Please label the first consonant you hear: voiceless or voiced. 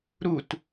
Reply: voiced